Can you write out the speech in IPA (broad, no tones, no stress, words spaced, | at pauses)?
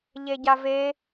ʎeɟave